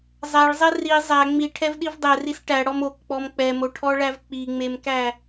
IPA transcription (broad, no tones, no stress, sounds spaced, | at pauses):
zˤ æ ɭ zˤ ɛ r i zˤ æ ŋ͡m i ʈʰ ɛ v ɗ i v dˤ ɛ r i s ʈ æ ɽ ɔ m o k k͡p ɔ m k͡p ɛ m o ʈʰ ɔ ɭ æ v k͡p i ŋ͡m e m k æ